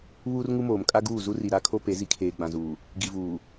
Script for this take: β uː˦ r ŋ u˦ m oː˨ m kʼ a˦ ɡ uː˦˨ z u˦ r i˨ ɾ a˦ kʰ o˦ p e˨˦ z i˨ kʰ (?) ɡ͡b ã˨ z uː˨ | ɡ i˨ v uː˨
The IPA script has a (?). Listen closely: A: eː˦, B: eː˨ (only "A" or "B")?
B